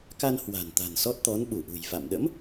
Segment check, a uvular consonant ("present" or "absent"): absent